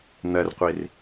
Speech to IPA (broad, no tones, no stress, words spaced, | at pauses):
n̪ɜrqʷir